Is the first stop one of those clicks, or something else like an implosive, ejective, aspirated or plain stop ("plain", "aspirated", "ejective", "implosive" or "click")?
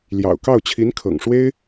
plain